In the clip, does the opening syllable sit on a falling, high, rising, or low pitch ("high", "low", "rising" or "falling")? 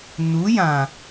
rising